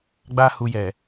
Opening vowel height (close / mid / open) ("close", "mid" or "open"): open